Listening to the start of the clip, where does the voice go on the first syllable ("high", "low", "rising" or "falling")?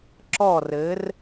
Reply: falling